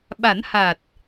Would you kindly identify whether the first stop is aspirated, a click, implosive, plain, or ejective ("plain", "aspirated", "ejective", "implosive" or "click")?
implosive